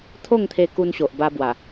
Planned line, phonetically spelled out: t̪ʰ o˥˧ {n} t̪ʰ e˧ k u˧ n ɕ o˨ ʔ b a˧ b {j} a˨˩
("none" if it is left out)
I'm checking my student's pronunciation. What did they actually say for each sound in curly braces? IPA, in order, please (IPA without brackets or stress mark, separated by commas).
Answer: ŋ, w